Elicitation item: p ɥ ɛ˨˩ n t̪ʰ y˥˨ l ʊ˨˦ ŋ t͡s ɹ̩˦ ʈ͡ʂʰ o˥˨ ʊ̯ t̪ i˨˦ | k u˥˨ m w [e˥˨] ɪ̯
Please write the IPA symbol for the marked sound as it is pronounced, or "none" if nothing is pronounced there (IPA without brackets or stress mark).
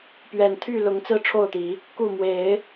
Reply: e˨˦